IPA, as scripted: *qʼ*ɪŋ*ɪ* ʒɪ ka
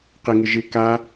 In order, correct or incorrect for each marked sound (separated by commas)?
incorrect, correct